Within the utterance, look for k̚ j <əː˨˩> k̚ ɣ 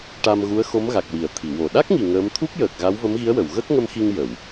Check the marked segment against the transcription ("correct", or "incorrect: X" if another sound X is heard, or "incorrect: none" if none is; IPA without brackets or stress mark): correct